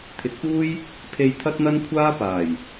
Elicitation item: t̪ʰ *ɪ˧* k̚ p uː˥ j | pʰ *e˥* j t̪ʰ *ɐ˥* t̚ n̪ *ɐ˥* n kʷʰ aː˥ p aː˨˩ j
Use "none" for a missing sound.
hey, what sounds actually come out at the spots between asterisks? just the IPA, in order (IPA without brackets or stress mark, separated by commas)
ɪ˨˥, e˧, ɐ˥, ɐ˥